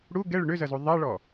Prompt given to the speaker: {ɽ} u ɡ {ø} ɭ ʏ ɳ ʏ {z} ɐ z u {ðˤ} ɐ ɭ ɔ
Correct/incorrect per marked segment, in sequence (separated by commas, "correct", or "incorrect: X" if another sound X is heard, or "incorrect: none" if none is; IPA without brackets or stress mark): correct, incorrect: ɛ, correct, correct